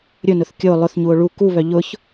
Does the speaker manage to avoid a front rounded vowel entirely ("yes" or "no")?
no